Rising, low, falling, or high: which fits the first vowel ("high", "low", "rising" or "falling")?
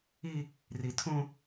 high